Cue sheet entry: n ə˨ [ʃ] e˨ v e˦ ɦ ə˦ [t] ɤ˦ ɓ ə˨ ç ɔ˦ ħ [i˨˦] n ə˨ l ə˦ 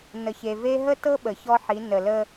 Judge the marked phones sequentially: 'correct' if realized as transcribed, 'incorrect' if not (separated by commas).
incorrect, correct, correct